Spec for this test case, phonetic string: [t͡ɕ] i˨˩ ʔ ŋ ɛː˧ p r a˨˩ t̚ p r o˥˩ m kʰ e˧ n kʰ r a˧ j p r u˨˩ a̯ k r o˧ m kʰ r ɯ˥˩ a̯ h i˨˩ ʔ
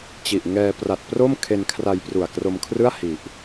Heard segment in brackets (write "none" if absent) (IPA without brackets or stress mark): t͡ɕ